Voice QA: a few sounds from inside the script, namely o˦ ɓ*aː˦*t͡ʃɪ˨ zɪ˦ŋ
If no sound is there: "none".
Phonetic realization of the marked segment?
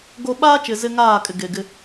aː˦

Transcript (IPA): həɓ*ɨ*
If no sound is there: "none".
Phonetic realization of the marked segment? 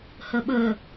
ə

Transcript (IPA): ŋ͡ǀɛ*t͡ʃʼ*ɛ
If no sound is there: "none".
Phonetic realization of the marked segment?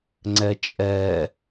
t͡ʃʼ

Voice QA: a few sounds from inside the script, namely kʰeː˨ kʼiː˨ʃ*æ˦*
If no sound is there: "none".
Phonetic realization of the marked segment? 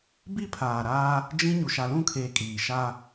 a˦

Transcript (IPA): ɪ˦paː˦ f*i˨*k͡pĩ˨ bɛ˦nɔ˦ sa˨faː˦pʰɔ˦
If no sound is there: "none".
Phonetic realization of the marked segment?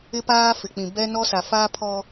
ɪ˨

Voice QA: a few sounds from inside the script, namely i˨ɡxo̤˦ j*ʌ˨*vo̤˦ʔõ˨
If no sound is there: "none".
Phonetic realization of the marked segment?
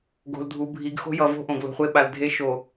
ʌ˨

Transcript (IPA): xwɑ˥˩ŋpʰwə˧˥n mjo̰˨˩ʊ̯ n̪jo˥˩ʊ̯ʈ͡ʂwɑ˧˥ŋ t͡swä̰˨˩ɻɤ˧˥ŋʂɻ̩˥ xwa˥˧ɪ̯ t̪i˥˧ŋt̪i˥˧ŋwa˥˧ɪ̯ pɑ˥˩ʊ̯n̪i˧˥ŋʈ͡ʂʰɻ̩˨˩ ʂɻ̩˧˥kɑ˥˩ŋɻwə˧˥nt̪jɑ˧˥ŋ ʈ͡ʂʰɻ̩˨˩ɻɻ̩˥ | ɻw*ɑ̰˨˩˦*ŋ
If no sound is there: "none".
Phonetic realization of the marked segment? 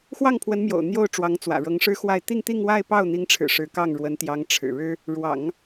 ɑ̰˨˩˦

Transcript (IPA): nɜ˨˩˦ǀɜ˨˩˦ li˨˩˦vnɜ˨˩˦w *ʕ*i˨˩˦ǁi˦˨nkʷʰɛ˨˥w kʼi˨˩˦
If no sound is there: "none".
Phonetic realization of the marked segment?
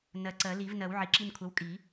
ʕ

